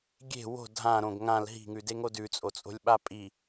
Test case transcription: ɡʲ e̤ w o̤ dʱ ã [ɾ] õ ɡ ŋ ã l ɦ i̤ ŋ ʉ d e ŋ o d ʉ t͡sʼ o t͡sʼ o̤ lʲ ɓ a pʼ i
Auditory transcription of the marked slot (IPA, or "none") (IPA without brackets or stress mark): ɾ